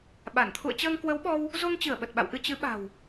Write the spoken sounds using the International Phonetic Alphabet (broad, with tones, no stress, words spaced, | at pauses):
ɓa˧˩n t̪ʰṵ˧˨ə̯t͡ɕəː˧ŋkwə˨˦wɓɔ˧w | zo˧ŋt͡ɕɨ˧˩ə̯ ɓə˨˩t̚ɓa̰˧˨wʔɨ˧ t͡ɕɨ˨˦ɓa̤˨˩w